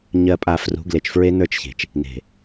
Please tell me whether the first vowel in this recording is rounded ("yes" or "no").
no